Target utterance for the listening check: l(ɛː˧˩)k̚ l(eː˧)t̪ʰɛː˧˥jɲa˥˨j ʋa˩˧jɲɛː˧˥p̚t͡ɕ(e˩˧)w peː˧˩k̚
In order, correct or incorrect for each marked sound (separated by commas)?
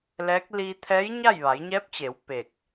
incorrect, incorrect, correct